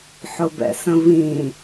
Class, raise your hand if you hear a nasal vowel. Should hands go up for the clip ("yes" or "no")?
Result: yes